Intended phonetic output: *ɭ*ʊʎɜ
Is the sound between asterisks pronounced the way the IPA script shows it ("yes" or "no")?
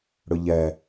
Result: no